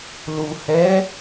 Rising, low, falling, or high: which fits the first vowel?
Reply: low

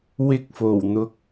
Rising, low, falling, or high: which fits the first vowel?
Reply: high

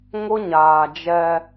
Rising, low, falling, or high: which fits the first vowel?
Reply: high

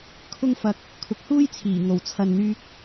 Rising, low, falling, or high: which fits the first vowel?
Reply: high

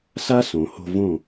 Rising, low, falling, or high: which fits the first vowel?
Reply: high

